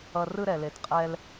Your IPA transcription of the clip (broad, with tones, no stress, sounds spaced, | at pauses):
ʌ˧ r ɯ˦ ɾ ɛ˨ l e˨ t qʼ ɛ˧ l